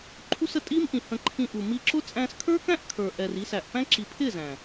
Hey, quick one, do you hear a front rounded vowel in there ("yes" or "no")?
no